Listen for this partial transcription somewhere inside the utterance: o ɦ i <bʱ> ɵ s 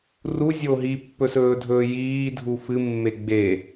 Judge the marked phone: incorrect: pː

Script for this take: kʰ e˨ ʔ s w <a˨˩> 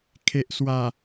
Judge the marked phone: correct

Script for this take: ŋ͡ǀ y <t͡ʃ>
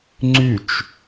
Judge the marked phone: correct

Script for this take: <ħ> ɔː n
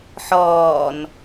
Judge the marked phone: correct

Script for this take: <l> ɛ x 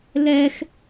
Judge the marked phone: correct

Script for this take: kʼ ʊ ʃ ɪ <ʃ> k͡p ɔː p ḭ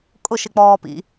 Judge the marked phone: incorrect: none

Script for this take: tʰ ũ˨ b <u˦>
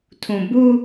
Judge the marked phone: correct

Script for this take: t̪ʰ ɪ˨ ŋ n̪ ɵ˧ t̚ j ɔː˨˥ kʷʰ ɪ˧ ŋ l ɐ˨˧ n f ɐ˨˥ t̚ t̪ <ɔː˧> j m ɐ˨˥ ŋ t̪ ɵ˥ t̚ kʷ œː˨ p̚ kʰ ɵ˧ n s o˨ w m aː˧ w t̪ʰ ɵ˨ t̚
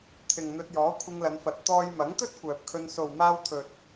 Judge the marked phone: correct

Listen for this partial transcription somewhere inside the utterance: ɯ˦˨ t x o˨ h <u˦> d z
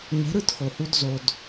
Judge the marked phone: correct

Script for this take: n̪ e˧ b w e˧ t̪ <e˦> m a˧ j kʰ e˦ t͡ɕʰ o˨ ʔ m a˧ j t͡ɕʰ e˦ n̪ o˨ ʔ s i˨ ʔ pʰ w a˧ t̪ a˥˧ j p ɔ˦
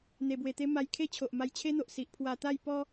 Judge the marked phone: correct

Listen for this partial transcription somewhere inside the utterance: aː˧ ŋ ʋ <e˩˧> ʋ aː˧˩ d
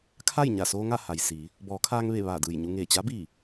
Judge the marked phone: incorrect: e˧˩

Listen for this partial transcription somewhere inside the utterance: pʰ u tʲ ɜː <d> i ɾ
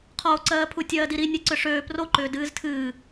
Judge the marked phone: correct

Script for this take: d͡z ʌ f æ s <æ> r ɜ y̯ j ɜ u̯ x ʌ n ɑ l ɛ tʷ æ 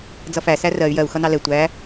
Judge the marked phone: correct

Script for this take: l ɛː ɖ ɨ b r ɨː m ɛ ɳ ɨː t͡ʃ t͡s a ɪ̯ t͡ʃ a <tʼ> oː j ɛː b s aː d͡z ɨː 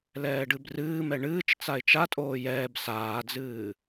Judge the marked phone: correct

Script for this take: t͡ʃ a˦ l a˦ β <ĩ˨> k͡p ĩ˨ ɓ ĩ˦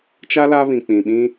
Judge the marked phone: correct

